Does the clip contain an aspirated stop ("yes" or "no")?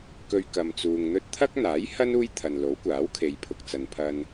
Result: yes